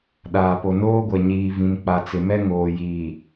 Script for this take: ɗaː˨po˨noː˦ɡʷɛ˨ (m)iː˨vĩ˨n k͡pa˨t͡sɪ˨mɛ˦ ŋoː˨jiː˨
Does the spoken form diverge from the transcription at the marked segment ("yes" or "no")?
yes